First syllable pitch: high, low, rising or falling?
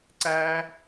high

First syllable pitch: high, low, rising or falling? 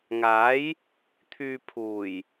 rising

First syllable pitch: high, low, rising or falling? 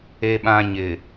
low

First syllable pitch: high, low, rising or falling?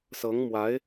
rising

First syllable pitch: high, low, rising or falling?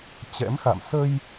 rising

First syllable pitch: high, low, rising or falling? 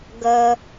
low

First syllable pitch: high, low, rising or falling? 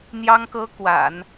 high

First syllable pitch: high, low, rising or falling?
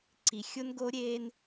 low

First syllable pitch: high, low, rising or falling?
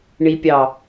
low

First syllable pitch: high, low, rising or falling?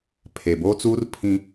low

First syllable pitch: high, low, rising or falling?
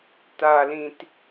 low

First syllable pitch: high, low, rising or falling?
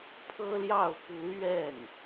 high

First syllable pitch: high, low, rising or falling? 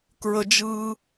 low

